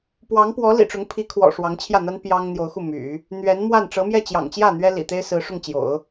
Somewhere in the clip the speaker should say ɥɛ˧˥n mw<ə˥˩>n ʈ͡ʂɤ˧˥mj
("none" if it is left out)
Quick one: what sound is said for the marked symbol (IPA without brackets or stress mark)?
a˥˩